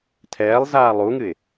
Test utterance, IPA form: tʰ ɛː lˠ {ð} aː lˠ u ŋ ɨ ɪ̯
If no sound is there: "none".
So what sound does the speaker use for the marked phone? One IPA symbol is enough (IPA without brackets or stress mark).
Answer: z